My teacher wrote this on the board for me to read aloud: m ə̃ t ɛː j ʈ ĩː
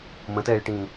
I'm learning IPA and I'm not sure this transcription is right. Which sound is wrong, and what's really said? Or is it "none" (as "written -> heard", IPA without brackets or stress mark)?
none